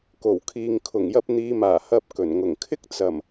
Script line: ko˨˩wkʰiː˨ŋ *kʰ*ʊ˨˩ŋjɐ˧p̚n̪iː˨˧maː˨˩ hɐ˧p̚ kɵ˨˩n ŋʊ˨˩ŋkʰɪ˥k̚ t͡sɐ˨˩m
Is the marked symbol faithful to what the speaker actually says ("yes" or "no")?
yes